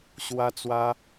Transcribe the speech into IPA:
ɕ w a˧ t͡s w a˧

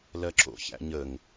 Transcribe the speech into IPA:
l ɜ ǁ o̰ ç æ̰ ɲ ə ŋ

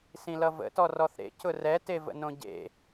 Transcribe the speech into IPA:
s ĩ l ʌ v ə̰ t ɔ r ɔ θ ɾ ḛ c ʊ r ɛ t e v ə̰ n õ ɟ ḛ

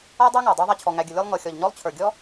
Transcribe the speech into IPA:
a˥ dˤ a˥ ŋ a˩ dˤ ə˞˦ ðˤ a˦ t͡ɕʰ ɔ˨ ŋ æ˨ ɡʲ ə˨ lʲ ɔ˦ lˠ ŋ ɤ˨ xʲ ɔ˨ ʎ ɲ ɔ˥ lˠ t͡ɕʰ ə˞˨ ɡʲ ɔ˥

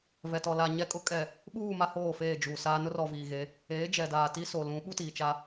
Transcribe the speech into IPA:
v ɛ˨ t ɔ˨ l a˨ ɲ ɛ˨ kʼ ʊ˨ kʼ ɛ˨ | ɓ uː˦˨ m a˦ h oː˦˨ f eː˦˨ d͡ʒ u˨ s aː˦ n ʊ˦ r ɔ˨ v iː˨ ɣ e˨˦ | eː˨˦ d͡ʒ ɛ˨ d aː˨ t i˦ s o˨ l ũ˨˦ ɓ u˦ t iː˨ t͡ʃ a˦

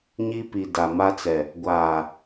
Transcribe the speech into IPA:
ɲ i˦ p i˨ d a˨ m a˦ t͡s ɛ˨ | ɡʷ aː˨

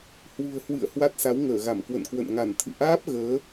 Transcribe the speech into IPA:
h w ṳ˨˩ ə̯ h w ɨ̰˧˨ ə̯ h w a˦˥ t̚ s a˨˦ w ŋ əː˧˩ ɣ a˧˩ m k w ə̰˧˨ n k w ə̰˧˨ n ŋ a˧˩ n t̪ʰ ɨ̰˧˨ ʔ aː˦˥ p̚ ɣ əː˨˦

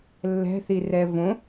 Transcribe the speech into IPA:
lː ɛ̤ θ i r ɛ v õ

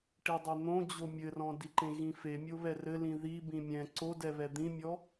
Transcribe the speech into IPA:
ʈ i dˤ ɛ n̪ õ d͡ʑ o mʲ ɘ r ɔ̃ d i ǃ ẽ ɣ ĩ f e mʲ o β ɛ r ɘ l ĩ ð i b ĩ mʲ ɛ̃ ǀ o d ɛ β ɛ d̪ ĩ mʲ ɔ

